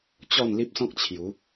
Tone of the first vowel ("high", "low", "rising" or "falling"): falling